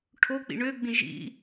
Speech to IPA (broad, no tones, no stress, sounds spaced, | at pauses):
ʈʰ o k͡p ḭ ɳ ø ɡ͡b ĩ ʒ ḭ